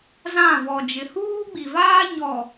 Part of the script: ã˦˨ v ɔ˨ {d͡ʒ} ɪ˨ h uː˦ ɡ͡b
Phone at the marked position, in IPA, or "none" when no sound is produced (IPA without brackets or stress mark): d͡ʒ